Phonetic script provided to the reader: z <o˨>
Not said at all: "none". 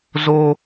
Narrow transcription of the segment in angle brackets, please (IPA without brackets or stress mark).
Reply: o˦